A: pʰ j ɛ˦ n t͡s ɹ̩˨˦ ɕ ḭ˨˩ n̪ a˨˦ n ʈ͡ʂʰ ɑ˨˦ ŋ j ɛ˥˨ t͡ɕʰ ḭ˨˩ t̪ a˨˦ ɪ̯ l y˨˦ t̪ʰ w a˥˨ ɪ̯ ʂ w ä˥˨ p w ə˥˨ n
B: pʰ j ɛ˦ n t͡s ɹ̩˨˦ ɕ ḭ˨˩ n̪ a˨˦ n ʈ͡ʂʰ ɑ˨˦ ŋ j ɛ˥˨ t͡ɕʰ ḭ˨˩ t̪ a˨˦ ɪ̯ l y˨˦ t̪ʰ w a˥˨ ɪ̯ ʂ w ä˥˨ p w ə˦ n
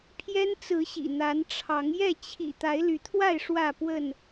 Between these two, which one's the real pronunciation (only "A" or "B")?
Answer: A